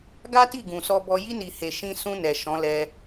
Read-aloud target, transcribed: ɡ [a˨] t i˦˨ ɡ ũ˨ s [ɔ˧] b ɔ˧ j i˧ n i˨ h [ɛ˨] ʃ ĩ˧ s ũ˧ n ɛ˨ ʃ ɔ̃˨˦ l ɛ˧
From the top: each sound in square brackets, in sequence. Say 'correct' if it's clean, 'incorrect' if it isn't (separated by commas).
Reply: incorrect, correct, incorrect